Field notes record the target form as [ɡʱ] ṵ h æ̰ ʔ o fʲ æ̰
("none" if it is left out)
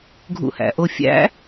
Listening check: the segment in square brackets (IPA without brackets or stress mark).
ɡʱ